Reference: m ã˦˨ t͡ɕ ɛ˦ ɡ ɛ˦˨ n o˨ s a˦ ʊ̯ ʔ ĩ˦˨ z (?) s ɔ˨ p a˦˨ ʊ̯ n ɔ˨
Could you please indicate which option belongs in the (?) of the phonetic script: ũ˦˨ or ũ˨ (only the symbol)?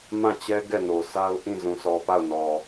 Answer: ũ˨